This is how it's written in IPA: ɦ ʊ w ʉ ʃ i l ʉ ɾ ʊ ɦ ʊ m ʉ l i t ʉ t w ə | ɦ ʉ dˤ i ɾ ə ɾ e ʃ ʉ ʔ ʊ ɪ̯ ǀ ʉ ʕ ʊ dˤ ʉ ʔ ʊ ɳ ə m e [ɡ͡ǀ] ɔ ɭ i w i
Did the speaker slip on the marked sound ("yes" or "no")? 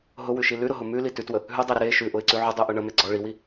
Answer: no